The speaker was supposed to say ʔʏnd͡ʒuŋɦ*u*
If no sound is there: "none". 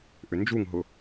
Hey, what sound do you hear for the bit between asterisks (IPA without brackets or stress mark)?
ʊ